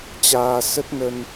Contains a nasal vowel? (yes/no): no